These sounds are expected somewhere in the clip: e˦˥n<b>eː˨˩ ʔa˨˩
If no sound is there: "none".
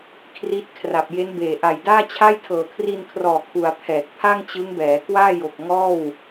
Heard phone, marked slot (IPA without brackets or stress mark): b